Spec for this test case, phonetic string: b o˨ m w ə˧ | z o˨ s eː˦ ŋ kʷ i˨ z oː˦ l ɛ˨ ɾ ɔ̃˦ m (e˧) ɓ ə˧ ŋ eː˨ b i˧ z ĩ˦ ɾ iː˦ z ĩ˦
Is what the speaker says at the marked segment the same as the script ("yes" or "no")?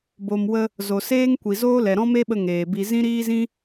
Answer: no